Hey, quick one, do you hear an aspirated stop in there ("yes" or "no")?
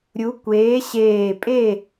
no